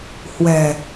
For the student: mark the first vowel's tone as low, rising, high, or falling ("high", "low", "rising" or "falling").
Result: low